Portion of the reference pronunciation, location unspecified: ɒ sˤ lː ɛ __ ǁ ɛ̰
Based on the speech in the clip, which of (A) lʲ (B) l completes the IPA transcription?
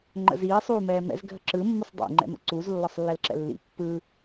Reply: B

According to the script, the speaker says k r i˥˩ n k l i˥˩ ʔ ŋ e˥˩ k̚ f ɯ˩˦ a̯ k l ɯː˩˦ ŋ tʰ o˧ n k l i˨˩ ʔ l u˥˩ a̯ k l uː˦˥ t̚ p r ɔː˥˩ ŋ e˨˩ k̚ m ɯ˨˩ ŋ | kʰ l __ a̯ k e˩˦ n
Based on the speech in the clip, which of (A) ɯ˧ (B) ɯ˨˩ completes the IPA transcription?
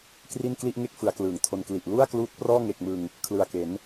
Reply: B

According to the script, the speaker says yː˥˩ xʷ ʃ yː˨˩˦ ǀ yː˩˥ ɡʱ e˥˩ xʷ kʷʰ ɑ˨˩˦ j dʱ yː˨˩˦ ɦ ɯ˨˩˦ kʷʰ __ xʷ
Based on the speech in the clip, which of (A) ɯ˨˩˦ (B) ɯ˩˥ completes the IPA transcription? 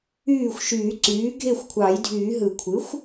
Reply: B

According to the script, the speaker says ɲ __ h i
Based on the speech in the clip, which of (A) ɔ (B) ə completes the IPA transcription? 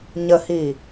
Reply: B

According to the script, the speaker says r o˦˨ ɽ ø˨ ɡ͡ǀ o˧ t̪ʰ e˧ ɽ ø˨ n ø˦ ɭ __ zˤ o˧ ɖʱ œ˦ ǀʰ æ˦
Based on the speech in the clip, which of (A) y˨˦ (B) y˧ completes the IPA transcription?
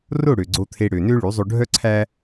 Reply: A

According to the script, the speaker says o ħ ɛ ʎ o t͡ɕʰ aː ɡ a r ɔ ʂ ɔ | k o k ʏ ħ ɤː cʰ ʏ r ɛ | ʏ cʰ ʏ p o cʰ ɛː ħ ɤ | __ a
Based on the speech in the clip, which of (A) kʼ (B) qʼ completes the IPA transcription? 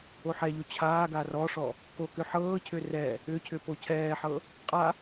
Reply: B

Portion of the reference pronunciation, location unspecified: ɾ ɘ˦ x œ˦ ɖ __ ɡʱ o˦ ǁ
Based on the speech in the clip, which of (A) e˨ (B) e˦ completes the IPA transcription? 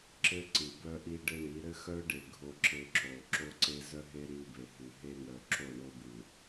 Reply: A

